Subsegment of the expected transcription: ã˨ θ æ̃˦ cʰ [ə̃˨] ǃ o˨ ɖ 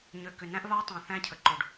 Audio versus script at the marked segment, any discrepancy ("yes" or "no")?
yes